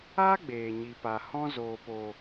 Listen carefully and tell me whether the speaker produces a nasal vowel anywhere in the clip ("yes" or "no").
yes